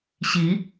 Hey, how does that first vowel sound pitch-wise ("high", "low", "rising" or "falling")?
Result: rising